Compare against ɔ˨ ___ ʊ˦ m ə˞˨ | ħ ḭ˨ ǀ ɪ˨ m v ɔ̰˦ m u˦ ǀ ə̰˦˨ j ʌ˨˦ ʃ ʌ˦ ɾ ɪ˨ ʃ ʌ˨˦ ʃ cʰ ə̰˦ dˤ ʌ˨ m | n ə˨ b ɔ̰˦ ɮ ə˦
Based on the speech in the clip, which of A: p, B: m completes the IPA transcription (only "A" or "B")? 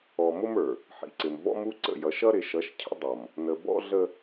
B